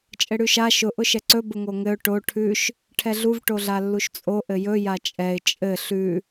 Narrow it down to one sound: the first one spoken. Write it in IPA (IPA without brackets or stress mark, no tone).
t͡ʃʼ